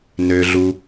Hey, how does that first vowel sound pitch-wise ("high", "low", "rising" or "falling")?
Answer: low